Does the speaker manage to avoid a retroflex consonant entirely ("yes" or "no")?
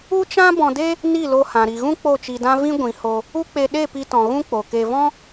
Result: yes